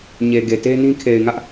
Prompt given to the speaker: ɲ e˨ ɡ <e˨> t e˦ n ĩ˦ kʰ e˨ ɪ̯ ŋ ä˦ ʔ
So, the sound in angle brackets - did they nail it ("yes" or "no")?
yes